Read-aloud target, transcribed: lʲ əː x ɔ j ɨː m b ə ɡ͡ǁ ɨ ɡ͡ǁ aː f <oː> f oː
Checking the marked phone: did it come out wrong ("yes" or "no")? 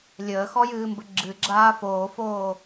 no